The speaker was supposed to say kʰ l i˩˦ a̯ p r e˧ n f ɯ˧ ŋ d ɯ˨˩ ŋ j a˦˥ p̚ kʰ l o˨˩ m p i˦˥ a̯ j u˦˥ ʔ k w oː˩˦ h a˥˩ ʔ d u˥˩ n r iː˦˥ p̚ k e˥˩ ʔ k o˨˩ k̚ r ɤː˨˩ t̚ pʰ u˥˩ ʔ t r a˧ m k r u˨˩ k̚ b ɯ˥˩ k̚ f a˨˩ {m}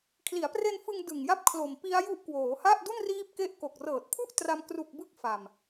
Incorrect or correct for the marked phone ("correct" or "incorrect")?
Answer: correct